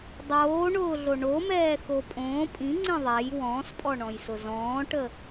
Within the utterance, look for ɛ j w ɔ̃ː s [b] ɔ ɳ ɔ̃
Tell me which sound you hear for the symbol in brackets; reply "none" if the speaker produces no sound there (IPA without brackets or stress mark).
pʼ